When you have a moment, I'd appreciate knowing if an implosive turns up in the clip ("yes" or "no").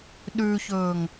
yes